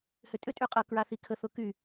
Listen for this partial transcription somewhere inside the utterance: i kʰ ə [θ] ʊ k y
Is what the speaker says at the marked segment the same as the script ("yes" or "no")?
yes